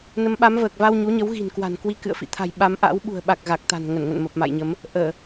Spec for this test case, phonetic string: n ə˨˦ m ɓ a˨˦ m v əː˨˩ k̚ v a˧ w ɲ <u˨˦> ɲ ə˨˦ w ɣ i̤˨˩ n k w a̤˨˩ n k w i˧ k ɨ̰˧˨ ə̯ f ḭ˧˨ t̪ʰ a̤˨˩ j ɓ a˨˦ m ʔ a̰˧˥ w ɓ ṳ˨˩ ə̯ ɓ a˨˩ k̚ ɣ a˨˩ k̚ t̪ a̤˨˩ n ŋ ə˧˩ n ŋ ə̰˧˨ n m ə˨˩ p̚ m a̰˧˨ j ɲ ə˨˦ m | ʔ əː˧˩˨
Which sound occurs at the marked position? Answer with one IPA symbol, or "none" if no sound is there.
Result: u˨˦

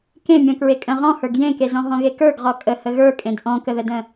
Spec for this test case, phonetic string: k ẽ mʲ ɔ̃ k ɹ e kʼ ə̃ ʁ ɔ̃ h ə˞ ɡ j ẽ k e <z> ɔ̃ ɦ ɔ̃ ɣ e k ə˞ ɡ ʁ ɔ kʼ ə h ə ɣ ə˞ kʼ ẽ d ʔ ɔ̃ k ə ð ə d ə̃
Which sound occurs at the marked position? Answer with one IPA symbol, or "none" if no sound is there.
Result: z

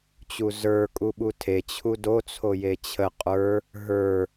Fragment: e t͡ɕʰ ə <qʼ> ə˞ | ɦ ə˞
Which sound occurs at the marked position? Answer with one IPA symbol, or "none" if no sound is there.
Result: qʼ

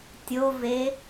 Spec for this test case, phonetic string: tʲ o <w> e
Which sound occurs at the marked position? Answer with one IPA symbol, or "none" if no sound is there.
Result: v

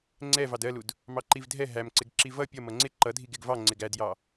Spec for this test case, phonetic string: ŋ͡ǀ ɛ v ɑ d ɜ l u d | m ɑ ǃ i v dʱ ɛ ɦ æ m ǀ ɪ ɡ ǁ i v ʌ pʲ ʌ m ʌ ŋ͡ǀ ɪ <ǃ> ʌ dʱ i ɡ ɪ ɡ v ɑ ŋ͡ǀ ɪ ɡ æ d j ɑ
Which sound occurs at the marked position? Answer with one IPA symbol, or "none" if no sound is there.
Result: ǃ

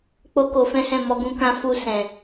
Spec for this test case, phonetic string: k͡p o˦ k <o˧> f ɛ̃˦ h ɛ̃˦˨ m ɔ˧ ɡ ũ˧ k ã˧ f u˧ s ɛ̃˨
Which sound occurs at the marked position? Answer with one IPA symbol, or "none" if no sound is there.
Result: o˧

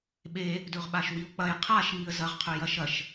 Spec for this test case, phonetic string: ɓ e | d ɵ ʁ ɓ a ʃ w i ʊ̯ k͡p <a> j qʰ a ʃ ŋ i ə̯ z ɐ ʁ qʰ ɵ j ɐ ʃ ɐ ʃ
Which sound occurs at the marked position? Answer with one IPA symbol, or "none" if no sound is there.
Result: ɐ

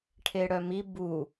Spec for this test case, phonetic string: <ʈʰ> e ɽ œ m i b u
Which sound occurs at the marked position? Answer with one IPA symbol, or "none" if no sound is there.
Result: ʈʰ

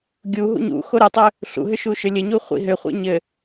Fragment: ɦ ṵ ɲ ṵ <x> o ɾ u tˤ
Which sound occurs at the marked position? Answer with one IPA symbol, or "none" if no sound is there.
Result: x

